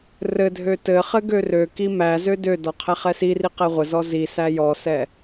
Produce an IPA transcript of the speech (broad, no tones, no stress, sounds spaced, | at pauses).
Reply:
r ɘ dʱ ø t ɘ χ ɘ ɡ ø r ø k i m æ z ø d ø d ɔ qʰ æ χ ɛ s i r i q ɛ ʁʷ ɘ z ɔ z i s æ j ɔ s ɛ